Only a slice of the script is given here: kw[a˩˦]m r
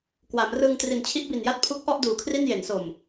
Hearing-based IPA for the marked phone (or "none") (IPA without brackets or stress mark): a˩˦